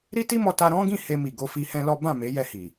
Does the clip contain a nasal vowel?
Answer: yes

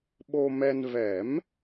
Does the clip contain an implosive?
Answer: yes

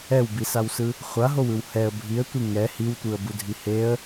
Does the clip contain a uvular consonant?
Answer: yes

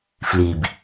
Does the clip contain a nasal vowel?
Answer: no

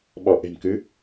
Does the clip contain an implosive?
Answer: yes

